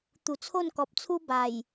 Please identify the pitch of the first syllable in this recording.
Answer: low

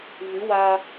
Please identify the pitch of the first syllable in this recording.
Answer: rising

